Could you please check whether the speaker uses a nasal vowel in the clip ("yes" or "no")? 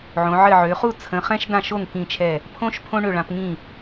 yes